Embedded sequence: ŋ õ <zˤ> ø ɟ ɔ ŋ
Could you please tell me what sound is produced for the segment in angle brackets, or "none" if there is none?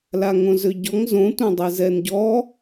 z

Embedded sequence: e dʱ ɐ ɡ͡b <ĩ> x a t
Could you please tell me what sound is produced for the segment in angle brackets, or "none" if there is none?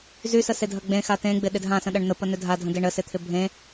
ẽ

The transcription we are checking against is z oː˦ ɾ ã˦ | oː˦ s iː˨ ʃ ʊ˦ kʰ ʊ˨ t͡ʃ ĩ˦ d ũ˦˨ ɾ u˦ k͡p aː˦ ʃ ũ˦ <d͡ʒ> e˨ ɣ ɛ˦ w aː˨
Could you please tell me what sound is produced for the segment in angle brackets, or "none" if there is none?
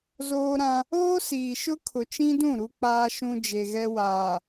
d͡ʒ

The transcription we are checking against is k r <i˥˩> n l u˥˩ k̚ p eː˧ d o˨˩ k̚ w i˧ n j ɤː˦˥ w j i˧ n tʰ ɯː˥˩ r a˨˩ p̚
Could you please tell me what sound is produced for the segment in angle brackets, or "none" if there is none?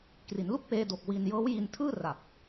i˩˦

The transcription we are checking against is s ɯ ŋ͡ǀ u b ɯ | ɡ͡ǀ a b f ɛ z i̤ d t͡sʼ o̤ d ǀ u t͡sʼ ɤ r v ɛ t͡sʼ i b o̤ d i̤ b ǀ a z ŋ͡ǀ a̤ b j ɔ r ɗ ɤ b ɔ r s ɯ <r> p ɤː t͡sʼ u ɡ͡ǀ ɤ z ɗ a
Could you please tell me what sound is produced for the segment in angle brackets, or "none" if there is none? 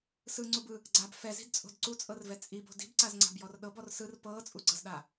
r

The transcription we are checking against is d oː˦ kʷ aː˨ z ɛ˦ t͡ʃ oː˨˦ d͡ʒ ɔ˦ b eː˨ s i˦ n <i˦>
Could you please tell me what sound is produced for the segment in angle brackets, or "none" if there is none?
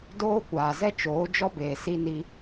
i˦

